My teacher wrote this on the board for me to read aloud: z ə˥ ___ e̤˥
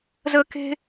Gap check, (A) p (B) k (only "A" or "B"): B